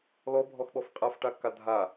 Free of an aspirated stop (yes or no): yes